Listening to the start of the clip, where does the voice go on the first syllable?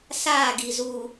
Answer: falling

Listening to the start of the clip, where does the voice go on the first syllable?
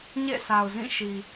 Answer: falling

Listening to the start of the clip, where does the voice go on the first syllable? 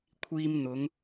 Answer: high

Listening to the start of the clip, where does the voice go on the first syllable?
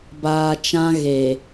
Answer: low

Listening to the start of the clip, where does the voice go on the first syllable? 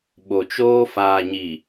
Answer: low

